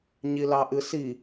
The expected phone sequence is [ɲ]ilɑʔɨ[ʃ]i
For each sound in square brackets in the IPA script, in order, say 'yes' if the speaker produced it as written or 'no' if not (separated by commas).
yes, no